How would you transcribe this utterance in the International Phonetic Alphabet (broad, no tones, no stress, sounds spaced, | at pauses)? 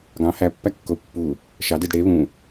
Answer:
ɡ ɑ̃ h æ pː æ kː o u̯ pː u | ʃ ɑ d i d ɽ e β ũ